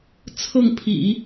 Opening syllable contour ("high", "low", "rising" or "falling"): falling